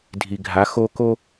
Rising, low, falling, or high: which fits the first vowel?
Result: low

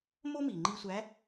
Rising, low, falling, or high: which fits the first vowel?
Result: high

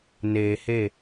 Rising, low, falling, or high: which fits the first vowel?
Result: low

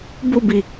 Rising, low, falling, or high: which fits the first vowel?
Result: falling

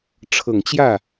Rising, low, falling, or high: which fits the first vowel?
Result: low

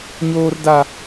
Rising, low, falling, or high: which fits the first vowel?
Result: high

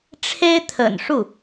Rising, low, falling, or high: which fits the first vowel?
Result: high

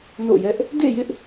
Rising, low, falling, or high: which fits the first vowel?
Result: falling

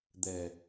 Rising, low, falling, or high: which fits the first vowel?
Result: low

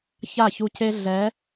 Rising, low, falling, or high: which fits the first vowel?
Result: falling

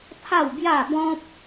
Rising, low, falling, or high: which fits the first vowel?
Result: falling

